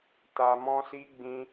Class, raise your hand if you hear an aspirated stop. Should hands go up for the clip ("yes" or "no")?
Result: no